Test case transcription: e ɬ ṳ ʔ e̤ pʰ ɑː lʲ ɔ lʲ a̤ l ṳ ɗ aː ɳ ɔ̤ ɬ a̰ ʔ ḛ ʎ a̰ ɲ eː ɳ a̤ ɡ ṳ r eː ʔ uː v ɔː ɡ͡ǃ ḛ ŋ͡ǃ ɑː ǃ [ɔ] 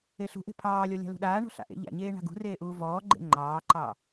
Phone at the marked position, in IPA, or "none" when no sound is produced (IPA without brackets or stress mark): ɑ